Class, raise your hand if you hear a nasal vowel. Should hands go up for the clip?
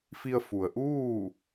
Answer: no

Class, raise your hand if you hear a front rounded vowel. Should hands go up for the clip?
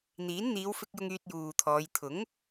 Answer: yes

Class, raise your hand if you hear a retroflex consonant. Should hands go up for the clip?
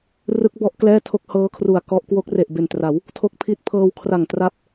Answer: no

